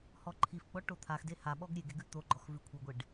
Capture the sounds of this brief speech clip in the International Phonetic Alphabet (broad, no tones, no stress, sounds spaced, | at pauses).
h ɔ ǃʰ i f ɡ͡b ɔ ʈ o t̪ʰ a x d e h a ɓ ɔ ɡ ɾʲ e ɡ e ɡ ʉ t̪ o ɡ͡ǃ ɔ x v ʉ kʷʰ i ɡʷ e ɖ